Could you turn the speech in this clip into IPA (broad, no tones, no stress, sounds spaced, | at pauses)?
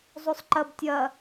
zˤ o sˤ ǃ ɐ b tʲ ɐ